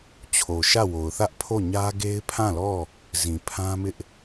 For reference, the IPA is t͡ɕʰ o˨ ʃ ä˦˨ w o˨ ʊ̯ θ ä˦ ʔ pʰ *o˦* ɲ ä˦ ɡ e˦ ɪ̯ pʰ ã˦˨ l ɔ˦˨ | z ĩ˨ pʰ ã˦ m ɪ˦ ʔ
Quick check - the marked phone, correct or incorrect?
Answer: incorrect